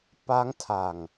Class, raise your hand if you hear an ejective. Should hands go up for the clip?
no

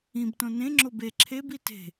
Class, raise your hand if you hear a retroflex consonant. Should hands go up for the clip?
no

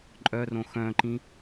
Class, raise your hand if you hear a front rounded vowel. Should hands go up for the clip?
yes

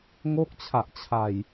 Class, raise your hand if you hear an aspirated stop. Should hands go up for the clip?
yes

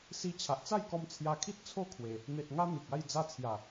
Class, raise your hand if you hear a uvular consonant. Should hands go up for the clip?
no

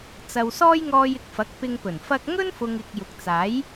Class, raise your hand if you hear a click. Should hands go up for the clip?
no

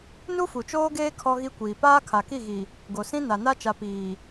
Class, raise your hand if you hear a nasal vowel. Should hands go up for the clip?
yes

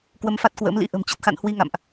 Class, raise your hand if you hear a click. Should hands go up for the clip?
no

